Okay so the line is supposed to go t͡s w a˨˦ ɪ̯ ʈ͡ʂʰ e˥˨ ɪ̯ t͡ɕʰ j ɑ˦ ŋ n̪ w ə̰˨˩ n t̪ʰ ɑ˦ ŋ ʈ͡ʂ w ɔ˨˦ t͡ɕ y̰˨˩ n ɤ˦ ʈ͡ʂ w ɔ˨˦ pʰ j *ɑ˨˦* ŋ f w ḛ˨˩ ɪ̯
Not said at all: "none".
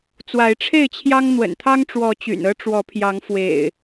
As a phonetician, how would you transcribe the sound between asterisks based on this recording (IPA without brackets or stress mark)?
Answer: ɑ˨˦